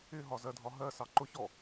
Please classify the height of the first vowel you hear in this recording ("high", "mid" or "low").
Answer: high